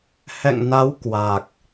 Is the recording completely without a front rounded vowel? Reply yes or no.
yes